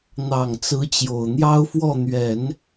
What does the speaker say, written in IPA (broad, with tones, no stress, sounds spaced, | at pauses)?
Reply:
n̪ ɑ˨˩ ŋ t͡s ɹ̩˧˥ t͡ɕ j o˨˩ ʊ̯ n̪ j ɑ˥ ʊ̯ f w ɔ˥˩ n̪ ɥ ɛ˨˩˦ n